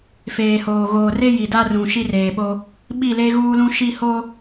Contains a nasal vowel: yes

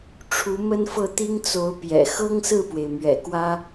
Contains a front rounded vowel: no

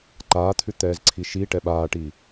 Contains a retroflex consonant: yes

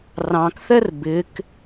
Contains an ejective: no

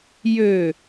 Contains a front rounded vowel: yes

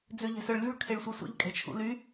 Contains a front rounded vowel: yes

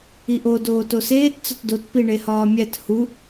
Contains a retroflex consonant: yes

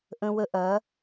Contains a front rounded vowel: no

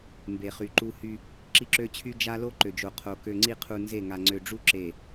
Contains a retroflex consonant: yes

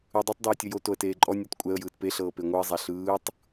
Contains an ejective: yes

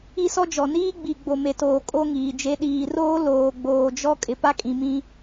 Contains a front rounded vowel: no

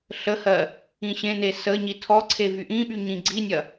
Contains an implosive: yes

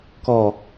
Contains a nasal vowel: no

